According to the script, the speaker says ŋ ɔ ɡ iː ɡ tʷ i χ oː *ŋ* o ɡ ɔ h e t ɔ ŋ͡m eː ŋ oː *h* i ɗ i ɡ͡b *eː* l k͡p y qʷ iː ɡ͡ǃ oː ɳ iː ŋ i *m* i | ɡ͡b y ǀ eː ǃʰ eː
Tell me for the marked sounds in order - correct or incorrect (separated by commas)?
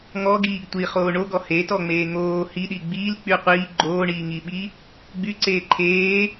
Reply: incorrect, correct, incorrect, incorrect